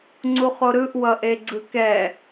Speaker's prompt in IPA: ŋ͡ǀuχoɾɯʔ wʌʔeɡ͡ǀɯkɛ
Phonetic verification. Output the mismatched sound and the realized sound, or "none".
none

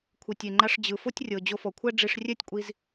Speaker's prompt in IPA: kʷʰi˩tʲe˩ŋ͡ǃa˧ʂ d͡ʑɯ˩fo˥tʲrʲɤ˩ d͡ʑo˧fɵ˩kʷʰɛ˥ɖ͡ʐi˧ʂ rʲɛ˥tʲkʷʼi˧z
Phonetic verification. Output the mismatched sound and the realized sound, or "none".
ɵ˩ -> ɔ˩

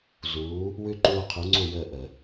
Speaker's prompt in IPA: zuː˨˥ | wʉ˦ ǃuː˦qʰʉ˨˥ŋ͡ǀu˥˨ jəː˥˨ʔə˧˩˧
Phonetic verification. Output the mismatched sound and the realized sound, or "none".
none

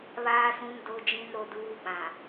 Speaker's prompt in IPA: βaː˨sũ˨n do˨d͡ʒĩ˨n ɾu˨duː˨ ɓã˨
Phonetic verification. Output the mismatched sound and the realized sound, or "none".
u˨ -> o˨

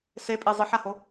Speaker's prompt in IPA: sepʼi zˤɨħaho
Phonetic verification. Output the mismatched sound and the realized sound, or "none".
none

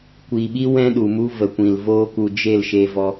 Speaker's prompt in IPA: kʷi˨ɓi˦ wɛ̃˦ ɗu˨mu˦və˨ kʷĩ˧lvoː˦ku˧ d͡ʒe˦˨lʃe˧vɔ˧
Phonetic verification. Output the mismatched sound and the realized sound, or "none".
ĩ˧ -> ĩ˨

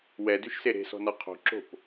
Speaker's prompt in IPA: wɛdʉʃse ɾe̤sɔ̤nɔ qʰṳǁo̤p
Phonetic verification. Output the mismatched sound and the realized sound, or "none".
ṳ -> o̤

